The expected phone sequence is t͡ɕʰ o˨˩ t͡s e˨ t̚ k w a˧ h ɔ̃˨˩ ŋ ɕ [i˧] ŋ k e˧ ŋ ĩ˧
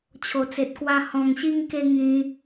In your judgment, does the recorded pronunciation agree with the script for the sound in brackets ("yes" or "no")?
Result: yes